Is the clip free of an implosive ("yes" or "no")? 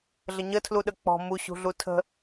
no